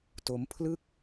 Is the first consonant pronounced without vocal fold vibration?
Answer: yes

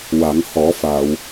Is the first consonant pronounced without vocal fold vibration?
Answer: no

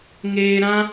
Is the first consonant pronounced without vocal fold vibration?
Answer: no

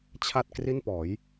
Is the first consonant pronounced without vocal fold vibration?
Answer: yes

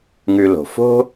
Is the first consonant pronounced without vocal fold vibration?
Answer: no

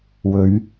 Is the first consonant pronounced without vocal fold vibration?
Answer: no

